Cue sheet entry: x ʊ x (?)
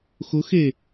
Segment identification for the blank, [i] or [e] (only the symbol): e